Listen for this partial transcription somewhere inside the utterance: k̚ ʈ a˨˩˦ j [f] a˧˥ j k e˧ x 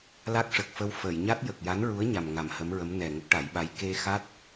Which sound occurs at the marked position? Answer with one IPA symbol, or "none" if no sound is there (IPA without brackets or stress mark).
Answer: ɓ